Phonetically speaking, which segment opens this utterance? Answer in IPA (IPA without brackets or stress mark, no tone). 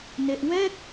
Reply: n